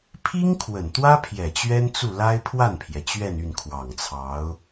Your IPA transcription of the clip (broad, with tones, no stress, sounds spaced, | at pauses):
pʰ i˥ ŋ kʰ w ə˨˩ n t̪ w ä˥ pʰ j ɛ˨˩ t͡ɕ ɥ ɛ˥ n t͡s u˥˩ l a˥ ɪ̯ pʰ w a˥˩ n pʰ j ɛ˩ t͡ɕ ɥ ɛ˥˧ n y˥˩ n kʰ w ɑ˨˩ ŋ t͡sʰ ɑ˧˥ ʊ̯